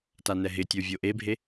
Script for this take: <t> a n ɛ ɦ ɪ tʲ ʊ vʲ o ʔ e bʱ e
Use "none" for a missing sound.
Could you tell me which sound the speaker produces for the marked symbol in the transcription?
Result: t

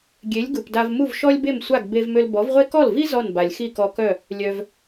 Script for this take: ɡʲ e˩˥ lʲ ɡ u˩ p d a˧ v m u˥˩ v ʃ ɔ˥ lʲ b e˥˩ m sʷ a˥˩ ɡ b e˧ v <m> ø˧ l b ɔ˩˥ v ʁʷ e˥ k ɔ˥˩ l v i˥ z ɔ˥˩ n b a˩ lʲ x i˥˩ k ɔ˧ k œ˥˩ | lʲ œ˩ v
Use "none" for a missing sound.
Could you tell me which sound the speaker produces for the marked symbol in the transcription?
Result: m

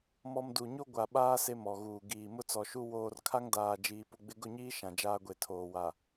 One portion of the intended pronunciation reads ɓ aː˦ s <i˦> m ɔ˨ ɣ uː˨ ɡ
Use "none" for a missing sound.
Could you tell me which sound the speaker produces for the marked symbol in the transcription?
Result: e˦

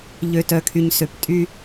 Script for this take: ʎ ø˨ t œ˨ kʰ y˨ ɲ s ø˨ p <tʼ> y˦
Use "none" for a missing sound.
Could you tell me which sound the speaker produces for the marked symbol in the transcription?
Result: tʼ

